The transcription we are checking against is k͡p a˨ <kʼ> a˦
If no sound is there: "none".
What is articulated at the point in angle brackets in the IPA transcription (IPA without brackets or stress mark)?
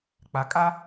kʼ